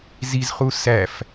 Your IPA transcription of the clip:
z i z χ u s æ f

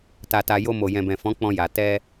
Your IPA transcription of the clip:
t a˧ t a˧ j o˧ m o˨ j ɛ̃˨ b ɛ̃˨ f ɔ̃˨˦ k͡p ɔ̃˧ j a˨ t ɛ˧

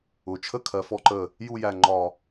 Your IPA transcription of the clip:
ʊ˩˧ t͡ʃʰ ə˥˧ kʰ ɜ˩˧ f ɔ˧ ǃ ə˧˩ | j u˥˧ j æ˧˩ ŋ͡ǃ ɒ˧˩

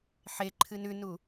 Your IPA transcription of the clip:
ħ e ǃʰ ɨ n ʉ n u

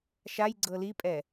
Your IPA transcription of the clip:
ʃ a j ɡ͡ǀ ɤ l i pʼ ɛ

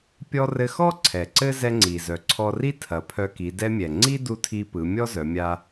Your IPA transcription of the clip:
pʲ ɔ˧ r ɘ˧ x ɔ˥ ǀʰ ɛ˩ ǀ ɘ˥ z ɛ˧ ŋ͡ǀ i˩ z œ˩ ǀʰ ɔ˧ r i˥ tʰ ɐ˩˧ pʰ œ˧ k i˩˧ d ɛ˧ mʲ ɛ˩ ŋ͡ǀ i˥ d u˧ tʰ i˧ p ɯ˩˧ mʲ ɔ˥ z œ˩˧ mʲ a˧

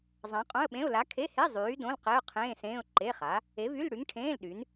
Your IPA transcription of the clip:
zˤ ã˨˥ qʼ õ˧˥˧ ə̯ ɓ ẽ˧˥˧ ʊ̯ l a˨˥ kʰ e˧˥˧ h e˧˥˧ zˤ yː˨˥ d õ˧˥˧ l q e˧˥˧ ʊ̯ qʰ ẽː˧˥˧ s ẽː˧˥˧ ʊ̯ ǃ e˧˥˧ χ a˨˥ | e˨˥ v y˧˥˧ l ɽ y˨˥ ŋ ʈʰ ẽː˧˥˧ l ɗ y˨˥ n

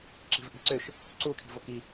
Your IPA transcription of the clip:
ǁ i̤ v ʔ i̤ ǀ ʏ ʃ | ǀ u kʰ i̤ v o k i

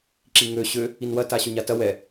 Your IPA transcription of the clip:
ǁ i ŋ ø ɕ ø | i n w ɐ t a ɕ ø ɲ a t ɐ w ɛ

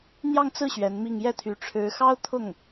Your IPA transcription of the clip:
n̪ j ɑ˥˧ ŋ t͡s ɹ̩˥˩ ɕ ɥ ɛ˧˥ n m i˥˧ ŋ j ɛ˥˩ t̪ʰ y˧˥ ʈ͡ʂʰ ɻ̩˧˥ x ɑ˥ ʊ̯ t̪ʰ ʊ˥˩ ŋ

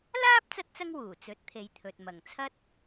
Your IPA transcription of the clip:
l aː˥ p̚ t͡s ɐ˥ t̚ t͡s ɐ˥ ŋ w uː˨˩ t͡s ɵ˨˥ t̚ t̪ʰ e˨˧ j t̪ʰ ɵ˨ t̚ m ɐ˨˩ ŋ t͡sʰ ɐ˥ t̚

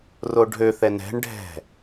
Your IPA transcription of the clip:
r o ɖʱ ø θ ɛ n ɛ̤ ɳ ɖʱ ɛ̤

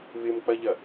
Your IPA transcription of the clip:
β ɪ m k͡p ɐ ʎ ɐ

